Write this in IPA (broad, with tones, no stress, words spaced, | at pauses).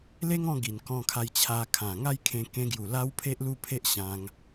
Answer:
le˦ŋɔ̃˧ ɡi˨˩n kɔ̃˧kʰa˧j t͡ɕʰa˧kʰã˨˩ ŋa˥˧jkʰẽ˧kẽ˧ɡju˨˩ la˦wpʰe˦ʔlu˥˧pʰe˦ʔ ɕã˦ŋ